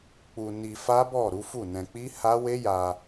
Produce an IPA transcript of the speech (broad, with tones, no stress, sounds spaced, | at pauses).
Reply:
k͡p u˧ n i˧ f a˦ b ɔ˦˨ ɾ u˨˦ f u˦˨ n ɛ̃˧ k͡p i˦ h a˦ w e˦ j a˧